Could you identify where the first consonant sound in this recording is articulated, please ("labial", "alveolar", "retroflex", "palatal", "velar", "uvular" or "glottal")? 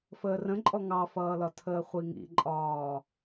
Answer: labial